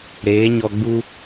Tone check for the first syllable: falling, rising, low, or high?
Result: rising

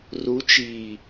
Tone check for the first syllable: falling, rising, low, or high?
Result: rising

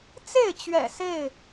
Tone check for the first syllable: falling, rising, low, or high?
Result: falling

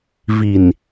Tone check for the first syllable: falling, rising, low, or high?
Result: low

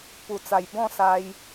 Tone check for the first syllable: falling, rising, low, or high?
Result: low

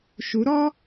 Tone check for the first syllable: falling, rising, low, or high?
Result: rising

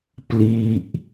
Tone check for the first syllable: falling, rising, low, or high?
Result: falling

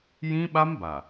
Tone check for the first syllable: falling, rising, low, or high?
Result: high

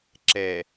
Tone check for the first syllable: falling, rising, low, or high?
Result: low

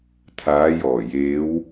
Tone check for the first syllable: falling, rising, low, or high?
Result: rising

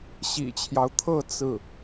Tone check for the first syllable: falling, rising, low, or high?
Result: low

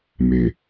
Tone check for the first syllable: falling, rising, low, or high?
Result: low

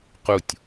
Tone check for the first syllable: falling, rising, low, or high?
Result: falling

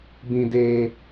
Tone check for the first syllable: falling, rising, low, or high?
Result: low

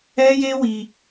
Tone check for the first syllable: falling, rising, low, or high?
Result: high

